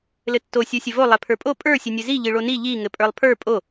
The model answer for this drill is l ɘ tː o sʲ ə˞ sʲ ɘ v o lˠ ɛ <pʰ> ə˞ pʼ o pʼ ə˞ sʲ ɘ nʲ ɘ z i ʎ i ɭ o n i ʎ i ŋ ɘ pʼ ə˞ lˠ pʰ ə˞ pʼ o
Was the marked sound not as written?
no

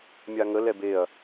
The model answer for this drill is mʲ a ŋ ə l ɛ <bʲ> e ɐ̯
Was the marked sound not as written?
yes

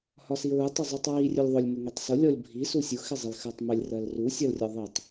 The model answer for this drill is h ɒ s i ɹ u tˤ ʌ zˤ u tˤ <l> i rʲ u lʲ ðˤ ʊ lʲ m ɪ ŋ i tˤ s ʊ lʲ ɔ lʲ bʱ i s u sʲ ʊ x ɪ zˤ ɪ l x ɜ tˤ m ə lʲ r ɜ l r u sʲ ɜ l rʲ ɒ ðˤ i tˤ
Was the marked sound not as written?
yes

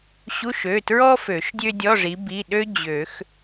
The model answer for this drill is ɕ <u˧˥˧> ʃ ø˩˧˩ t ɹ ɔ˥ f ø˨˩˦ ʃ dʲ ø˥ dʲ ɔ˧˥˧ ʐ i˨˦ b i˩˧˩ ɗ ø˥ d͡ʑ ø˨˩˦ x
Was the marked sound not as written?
no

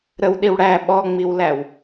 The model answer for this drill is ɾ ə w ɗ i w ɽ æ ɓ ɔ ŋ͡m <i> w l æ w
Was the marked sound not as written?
no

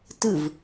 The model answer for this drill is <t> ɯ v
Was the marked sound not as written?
no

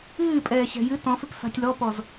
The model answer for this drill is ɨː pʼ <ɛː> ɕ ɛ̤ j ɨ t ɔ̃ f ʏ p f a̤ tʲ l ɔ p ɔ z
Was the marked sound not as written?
no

